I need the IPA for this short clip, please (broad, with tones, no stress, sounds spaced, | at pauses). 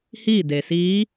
h iː˥˨ d e˩ s iː˧˥